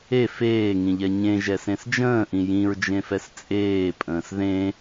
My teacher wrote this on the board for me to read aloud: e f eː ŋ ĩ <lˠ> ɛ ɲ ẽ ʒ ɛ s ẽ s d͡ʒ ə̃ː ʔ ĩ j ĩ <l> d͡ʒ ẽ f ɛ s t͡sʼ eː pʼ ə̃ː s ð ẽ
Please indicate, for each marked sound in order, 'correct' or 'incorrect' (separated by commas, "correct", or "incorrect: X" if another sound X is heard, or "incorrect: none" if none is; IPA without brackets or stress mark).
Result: incorrect: ʎ, incorrect: ɹ